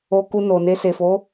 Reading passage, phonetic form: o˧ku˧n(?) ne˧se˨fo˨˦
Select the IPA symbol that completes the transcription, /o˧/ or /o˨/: o˨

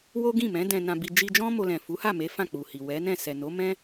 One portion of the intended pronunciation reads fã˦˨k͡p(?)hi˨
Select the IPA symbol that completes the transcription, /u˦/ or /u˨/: u˨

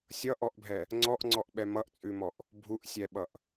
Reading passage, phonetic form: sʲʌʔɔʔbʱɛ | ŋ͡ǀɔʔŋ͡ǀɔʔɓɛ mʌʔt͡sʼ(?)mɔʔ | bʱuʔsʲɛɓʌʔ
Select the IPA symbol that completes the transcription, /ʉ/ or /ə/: ʉ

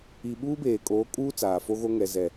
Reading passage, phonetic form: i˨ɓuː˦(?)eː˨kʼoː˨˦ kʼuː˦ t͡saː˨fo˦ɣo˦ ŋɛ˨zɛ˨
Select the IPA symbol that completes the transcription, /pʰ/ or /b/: b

